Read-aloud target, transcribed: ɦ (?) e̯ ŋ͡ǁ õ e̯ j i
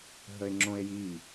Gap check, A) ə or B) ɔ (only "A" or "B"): A